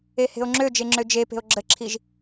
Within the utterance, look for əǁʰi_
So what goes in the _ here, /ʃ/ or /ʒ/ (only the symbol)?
ʒ